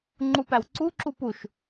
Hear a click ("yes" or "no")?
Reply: yes